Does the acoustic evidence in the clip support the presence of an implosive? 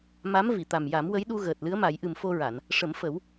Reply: yes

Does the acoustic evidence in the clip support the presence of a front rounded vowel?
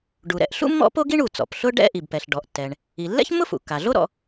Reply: no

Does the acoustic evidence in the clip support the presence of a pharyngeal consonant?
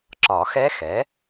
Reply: no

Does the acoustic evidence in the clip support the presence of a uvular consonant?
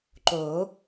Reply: no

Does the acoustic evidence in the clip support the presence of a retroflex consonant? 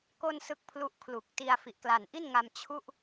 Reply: no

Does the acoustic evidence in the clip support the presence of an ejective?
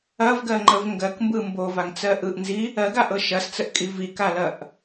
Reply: yes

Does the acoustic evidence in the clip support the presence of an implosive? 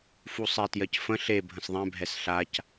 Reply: no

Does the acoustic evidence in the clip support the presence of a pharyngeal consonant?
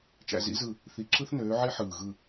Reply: yes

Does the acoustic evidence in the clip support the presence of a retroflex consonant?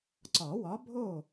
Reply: no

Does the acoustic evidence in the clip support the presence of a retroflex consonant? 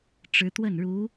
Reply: yes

